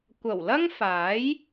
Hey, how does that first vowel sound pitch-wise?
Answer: low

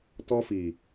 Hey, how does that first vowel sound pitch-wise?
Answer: high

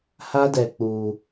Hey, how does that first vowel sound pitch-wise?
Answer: high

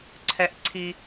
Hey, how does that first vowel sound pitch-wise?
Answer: low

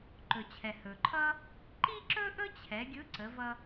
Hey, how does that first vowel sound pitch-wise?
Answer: low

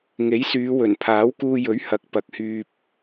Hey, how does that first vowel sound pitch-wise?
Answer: rising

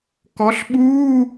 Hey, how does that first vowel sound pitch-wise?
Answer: rising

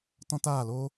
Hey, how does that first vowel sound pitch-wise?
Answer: high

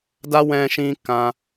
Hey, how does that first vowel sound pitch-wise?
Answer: high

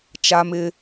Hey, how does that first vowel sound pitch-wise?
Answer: high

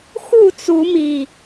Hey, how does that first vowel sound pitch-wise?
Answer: falling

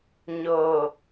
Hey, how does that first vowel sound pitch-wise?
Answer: low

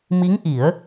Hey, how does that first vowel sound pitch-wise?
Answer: rising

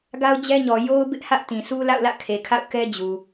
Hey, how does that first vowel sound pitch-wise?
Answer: high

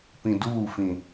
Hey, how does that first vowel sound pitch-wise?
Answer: low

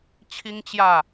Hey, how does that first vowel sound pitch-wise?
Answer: high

